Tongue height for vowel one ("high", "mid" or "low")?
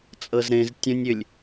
mid